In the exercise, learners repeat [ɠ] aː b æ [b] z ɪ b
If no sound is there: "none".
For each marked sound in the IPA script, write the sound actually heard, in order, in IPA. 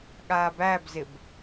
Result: ɠ, b

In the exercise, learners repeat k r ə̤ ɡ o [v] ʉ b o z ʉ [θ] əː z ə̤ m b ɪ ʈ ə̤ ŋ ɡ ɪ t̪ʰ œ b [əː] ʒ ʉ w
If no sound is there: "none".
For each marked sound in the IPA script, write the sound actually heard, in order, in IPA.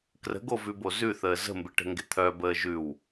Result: v, θ, əː

